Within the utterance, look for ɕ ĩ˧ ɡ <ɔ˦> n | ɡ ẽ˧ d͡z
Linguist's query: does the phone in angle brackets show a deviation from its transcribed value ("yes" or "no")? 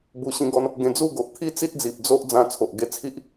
no